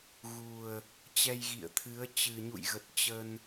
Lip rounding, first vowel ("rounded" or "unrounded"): rounded